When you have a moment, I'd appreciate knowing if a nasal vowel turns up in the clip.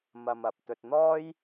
no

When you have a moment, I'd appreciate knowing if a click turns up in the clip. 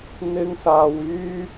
no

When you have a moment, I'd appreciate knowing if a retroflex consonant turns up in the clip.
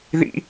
no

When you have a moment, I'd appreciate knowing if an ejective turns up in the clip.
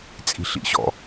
yes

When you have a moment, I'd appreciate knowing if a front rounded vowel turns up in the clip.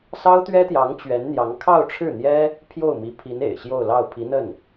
no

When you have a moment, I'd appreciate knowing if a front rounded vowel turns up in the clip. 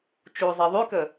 yes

